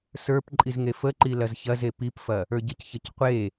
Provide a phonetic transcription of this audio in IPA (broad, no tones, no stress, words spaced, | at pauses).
sə˞p ǃʼizŋefəǃi lɐzçɐze pipfɐ | ə˞ɟəcçɐc qʷe